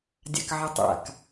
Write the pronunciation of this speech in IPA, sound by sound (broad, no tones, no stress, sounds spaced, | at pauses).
dʲ a̰ k ʕ ə tˤ a̰ k